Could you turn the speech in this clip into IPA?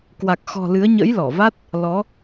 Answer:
kwa˨˩k̚xɔ̤˨˩ lɨ˨˦ə̯ɲə̰˧˥jlɔ˧˩va˦˥t̚ | lɔ˨˦

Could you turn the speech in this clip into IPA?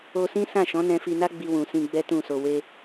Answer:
o˧sĩ˦ sã˦˨ʃɔ̃˨˦nɛ̃˧fi˧ na˦ɡ͡bi˧wũ˨ sĩ˧ɡ͡bɛ˦tũ˦˨so˧ we˦

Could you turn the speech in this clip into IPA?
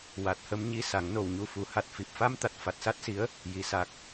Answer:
wa˨˩t̚hə˧mɲi˧ sa˨˩˦ŋno˨˩wɲu˧fu˨˩˦ ha˨˩t̚fi˨˩p̚fa˧mt̪a˨˩t̚ fa˨˩t̚sa˦˥t̚si˧˥ə̯ | ji˧sa˦˥k̚

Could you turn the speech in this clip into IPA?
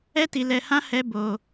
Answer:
ɛ˦ti˧ lɛ˧hã˦ hɛ˦ bo˧

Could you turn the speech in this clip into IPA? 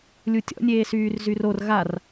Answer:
lʲutʲɔ̰ nʲeːsyːrzyror ɣar

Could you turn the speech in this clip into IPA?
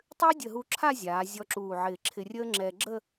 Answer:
tˤʏː˥dʲə˧˩ɦu˧ǁʰa˥˧ zʲaː˩˧ zʲɔ˧ǁuː˧˩ʕɪː˧˩ǁʰɪ˧ rʲəː˥ŋ͡ǁɛ˧ ɡ͡ǁə˥˧

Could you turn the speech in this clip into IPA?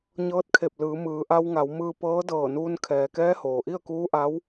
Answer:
ɲɤː˧˥t̚kʰe˧˩p̚lɯː˩˧ mɯː˩˧ʔa˧w ŋa˩˧wmɯː˧ pɤː˧˥dɤː˧˩nuː˧n kʰɛː˩kɛː˧˥ hoː˩ʔi˥˨ə̯kuː˧˥ʔa˧˥w

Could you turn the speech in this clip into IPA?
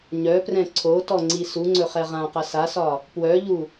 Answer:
ɲœprɛ̃ ǀʰotɔŋ͡ǀi suŋ͡ǀɵχɛ ʁãqɐ sasɒ | pwœʎu

